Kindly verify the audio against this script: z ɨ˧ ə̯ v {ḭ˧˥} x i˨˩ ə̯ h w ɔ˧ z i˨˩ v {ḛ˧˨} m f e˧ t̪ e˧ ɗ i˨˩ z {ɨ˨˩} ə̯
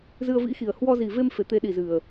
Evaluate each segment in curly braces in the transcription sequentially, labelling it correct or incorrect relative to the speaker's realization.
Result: correct, incorrect, correct

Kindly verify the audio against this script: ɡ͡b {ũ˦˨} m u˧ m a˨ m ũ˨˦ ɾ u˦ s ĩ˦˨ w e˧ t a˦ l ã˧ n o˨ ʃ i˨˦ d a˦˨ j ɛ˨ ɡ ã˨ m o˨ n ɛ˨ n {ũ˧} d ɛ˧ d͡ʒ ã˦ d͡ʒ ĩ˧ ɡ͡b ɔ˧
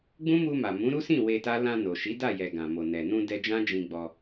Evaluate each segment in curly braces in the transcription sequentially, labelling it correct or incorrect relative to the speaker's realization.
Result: incorrect, correct

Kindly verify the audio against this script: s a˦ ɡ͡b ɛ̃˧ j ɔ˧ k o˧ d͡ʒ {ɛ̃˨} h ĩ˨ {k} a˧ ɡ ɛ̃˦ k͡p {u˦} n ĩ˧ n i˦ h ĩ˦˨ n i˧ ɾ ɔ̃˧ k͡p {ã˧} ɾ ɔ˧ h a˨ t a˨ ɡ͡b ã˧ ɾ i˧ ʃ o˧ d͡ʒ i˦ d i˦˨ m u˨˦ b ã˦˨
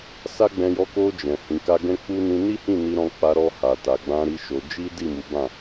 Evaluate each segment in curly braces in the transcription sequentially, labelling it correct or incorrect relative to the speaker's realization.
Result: correct, correct, correct, incorrect

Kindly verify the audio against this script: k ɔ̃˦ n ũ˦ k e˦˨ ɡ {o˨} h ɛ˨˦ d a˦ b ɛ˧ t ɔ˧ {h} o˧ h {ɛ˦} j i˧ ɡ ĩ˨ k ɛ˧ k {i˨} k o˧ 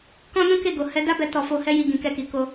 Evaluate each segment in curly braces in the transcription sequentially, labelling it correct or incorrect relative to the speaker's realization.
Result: correct, incorrect, correct, correct

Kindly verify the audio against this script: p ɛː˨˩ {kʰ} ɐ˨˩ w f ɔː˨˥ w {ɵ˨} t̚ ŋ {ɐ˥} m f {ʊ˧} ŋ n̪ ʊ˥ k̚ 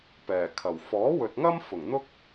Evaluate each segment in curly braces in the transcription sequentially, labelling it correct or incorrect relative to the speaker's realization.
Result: correct, correct, correct, incorrect

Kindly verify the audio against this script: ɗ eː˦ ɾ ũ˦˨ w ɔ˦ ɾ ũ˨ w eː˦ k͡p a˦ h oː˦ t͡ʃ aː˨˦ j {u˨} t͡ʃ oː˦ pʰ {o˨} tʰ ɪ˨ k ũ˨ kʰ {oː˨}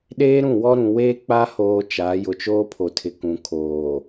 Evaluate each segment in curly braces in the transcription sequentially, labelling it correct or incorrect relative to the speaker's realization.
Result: incorrect, correct, correct

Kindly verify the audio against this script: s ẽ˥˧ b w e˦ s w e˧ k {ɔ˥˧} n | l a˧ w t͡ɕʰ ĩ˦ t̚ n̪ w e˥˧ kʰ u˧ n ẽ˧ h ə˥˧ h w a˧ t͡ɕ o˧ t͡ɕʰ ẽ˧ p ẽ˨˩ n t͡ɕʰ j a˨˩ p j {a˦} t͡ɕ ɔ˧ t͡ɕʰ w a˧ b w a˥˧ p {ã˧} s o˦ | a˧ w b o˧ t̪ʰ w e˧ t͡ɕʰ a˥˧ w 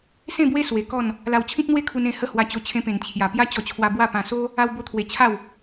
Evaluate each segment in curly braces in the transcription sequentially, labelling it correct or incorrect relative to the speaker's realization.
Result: correct, correct, correct

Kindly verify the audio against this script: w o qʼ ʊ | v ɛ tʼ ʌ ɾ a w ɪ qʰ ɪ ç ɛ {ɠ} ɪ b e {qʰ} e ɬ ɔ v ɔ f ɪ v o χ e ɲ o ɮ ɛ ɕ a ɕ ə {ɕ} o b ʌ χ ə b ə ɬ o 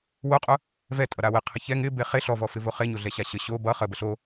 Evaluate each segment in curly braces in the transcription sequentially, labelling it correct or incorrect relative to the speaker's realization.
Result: incorrect, incorrect, correct

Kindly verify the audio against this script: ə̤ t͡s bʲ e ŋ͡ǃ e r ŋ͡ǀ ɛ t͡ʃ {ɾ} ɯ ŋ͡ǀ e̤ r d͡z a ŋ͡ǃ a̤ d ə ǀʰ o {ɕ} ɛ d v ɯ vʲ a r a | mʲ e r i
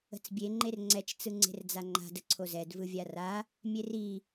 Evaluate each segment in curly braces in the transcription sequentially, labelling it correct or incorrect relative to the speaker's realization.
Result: incorrect, incorrect

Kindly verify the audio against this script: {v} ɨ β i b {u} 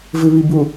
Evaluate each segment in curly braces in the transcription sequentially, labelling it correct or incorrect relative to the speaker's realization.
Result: correct, correct

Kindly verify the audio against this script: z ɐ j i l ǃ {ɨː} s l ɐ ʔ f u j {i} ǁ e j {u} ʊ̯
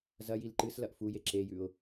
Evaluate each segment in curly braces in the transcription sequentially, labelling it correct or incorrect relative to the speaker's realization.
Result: incorrect, incorrect, incorrect

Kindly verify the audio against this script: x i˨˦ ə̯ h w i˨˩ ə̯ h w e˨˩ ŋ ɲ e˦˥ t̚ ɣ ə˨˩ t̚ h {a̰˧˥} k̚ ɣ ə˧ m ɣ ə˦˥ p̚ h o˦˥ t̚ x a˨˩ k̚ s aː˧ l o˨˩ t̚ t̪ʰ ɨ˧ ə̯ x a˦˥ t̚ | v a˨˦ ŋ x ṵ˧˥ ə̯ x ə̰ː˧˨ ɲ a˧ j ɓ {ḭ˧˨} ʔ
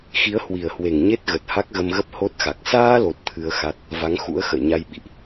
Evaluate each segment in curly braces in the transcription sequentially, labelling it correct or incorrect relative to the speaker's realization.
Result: incorrect, correct

